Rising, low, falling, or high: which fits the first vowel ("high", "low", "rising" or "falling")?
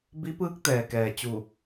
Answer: rising